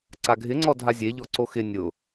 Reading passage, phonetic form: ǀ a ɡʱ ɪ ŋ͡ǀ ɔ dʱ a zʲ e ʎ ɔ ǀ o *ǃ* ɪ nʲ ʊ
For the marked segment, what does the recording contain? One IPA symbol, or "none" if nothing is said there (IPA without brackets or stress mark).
x